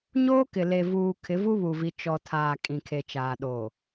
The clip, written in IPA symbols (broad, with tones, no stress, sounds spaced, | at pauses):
ɲ oː˦ k ɪ˨ l e˨ v uː˨ kʰ ɪ˨˦ v u˦ β u˨ v i˨ t͡ʃ ɔ˨ tʰ aː˨ kʼ ĩ˨ kʰ e˨ t͡ʃ aː˨ ɗ oː˨